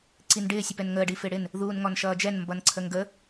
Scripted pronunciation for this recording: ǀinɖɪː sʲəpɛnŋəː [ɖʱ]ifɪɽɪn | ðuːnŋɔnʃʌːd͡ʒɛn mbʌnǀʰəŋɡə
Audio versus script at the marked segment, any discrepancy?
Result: yes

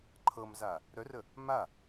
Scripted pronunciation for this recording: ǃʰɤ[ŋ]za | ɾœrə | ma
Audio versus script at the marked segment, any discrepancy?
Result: yes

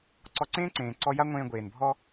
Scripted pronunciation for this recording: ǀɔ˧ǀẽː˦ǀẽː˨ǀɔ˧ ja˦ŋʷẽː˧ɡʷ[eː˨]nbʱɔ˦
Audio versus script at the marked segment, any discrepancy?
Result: no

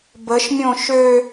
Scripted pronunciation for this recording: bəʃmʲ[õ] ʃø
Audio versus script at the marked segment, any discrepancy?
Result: no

